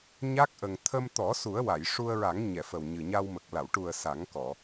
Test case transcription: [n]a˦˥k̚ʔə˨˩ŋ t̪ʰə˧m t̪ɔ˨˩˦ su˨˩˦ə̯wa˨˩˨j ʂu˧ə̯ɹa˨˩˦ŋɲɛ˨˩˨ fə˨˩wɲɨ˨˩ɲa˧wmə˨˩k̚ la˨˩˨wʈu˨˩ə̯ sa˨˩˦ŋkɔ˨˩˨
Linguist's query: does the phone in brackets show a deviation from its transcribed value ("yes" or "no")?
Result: yes